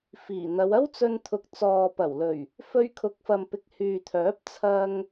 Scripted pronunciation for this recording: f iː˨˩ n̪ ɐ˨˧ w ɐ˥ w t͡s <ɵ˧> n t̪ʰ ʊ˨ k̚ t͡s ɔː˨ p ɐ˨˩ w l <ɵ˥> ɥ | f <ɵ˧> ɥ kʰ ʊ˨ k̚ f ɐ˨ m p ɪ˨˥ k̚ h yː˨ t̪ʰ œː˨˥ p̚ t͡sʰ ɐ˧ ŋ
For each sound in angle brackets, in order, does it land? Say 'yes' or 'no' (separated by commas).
yes, no, yes